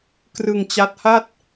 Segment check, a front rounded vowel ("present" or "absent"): absent